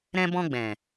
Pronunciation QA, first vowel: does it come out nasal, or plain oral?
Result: nasal